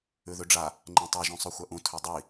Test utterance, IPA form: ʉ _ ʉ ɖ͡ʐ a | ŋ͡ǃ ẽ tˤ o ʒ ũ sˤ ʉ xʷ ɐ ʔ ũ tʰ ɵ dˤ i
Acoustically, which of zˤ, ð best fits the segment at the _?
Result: ð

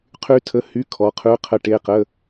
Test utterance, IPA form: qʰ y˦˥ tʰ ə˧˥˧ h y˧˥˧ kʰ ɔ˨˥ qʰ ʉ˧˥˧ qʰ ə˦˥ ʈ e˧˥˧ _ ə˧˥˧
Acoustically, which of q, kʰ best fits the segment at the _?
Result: q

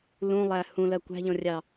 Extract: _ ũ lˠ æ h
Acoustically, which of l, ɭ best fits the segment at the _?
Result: l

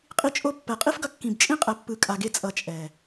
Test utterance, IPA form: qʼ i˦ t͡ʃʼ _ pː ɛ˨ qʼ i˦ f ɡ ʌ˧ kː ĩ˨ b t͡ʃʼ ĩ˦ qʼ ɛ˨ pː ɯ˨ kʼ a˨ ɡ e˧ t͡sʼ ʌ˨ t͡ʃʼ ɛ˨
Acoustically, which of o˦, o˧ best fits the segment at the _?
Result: o˦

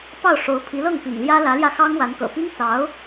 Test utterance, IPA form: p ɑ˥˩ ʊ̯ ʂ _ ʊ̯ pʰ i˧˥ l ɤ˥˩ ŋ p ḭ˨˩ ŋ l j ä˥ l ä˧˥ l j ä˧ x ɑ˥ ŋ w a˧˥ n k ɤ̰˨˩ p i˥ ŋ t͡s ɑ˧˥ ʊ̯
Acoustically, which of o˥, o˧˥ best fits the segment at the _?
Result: o˧˥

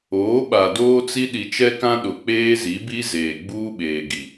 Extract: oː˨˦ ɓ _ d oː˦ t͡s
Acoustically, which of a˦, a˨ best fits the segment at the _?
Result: a˨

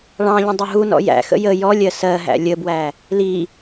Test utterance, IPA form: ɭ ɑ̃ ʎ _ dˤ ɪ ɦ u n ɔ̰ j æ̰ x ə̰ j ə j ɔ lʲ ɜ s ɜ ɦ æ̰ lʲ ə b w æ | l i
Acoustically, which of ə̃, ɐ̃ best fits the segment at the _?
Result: ə̃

